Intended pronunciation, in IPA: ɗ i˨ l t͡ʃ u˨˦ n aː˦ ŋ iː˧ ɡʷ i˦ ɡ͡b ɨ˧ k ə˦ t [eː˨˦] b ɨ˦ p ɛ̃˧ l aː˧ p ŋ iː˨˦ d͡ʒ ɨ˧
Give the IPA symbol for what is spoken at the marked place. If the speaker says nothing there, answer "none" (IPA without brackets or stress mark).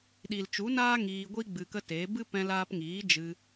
eː˨˦